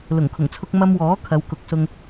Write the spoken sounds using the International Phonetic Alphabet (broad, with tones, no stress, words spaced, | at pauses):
lʊ˨˩ŋkʰʊ˨˩ŋt͡sʰʊ˧k̚ mɐ˧mwɔː˨˥ kʰɐ˨˧wkʊ˨˥k̚sʊ˧ŋ